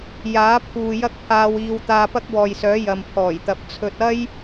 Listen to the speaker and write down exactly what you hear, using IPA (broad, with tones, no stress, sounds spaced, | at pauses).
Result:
j aː˨˥ pʰ uː˨ j ɐ˥ k̚ pʰ aː˧ w iː˧ w t̪ aː˧ p ɐ˥ k̚ w ɔː˨ j s œː˨˥ j ɐ˨ m pʰ ɔː˨˩ j t̪ ɐ˨ p̚ t͡sʰ ɵ˨ t̚ ɐ˥ j